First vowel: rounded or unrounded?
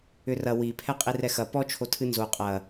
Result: rounded